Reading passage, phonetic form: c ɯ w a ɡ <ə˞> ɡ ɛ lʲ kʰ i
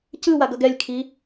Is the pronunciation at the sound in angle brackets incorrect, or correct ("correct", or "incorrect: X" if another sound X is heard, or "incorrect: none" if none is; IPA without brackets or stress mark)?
incorrect: ʌ